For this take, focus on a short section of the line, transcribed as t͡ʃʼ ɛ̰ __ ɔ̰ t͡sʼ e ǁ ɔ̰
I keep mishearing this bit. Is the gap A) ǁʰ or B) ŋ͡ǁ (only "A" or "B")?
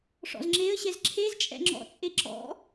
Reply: B